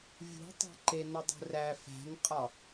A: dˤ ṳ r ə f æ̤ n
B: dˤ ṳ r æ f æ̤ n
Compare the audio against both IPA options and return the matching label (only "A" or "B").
B